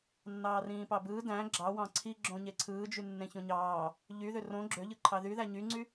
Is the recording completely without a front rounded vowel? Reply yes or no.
no